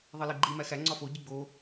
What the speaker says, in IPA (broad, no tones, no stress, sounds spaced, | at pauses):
ðˤ i l i ɡ͡ǃ i m æ x æ ŋ͡ǀ ɒ f o ɟ i ɡ͡b o